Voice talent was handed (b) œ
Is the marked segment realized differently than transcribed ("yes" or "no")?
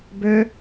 no